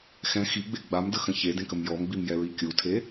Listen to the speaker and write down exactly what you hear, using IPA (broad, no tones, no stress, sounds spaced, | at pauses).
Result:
x ɛ̃ x i ɡ͡b e ɡ͡b a m d ə x ə̃ ç e d ẽ k ə m j ɔ m ɡ͡b i m j ɛ ɹ i kʲ u tʰ e